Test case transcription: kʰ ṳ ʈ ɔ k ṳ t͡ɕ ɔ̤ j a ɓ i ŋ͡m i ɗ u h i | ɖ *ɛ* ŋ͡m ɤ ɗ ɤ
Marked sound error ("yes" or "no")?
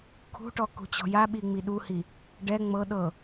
no